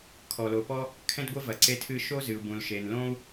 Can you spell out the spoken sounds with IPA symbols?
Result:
kʰ ɔ˩ l o˩ p ɔ˥ | kʰ ɛ̃˥ d ɡʷ e˥ v ɐ˩ ǀ e˧ tʰ ɨ˧ ʃ o˥ z ɨ˩ u̯ b ũ˩ l ʃ e˩ n l õ˥ u̯

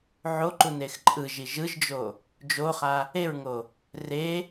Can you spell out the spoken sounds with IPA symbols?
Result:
ʕ o ǃ u n e x ǃʼ ɯ ʒ i ʒ ɯ ʒ d͡ʒ o | d͡ʒ o χ a | e ɹ ŋ o | r e

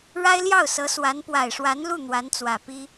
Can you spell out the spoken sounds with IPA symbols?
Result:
ɻ a˥ ɪ̯ l j ɑ˥˩ ʊ̯ s ɤ˧˥ s w a˧˥ n p w a˨˩ ɪ̯ ʂ w a˧˥ n l u˥˩ n̪ w a˧˥ n t͡s w ä˨˩ p i˥

